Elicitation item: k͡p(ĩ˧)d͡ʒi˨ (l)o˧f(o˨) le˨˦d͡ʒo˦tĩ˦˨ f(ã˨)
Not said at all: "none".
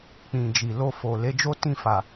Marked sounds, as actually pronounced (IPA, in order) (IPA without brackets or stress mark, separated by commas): ĩ˨, l, o˨, a˨